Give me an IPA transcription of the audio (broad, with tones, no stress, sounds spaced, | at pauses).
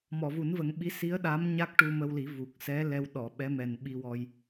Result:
m ɔ˨˩˨ v u˨˩˦ n v ə˨˩˦ ŋ ɓ i˧˥ s i˧˥ ə̯ ɗ a˧˥ m ɲ a˦˥ k̚ ʈ u˧ m ə˧ w l i˨˩˦ v u˨˩ k̚ s ɛ˧˥ l ɛ˧ w ɗ ɔ˨˩˨ ɓ ɛ˧˥ m ɛ˨˩ n ɓ i˧ w ɔ˧ j